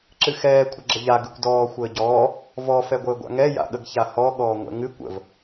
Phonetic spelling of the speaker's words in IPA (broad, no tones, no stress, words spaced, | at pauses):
ǁɨxɛː kʷʰəɡ͡ǁəʎa ɡɨkʷdɔː xʷəːɟɔː | vɔ fɛɡʷəːɡʷa̰ŋɛ ja̰ɠəɡçahɔ ɠɔːŋʷɛ̰ŋɨ kʷə̰v